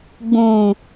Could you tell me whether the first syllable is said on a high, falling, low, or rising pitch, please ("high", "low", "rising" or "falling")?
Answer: low